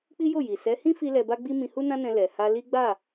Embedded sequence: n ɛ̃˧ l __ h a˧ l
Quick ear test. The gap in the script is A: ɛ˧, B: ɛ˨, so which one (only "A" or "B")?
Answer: B